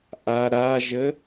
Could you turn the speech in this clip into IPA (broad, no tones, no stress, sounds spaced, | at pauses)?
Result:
ʔ a ɾ a ʒ ə